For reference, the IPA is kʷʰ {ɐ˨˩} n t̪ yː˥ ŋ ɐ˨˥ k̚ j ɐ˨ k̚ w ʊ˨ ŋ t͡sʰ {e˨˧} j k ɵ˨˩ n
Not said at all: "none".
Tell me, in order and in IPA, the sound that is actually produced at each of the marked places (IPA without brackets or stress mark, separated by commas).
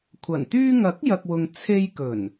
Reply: ɐ˨˩, e˧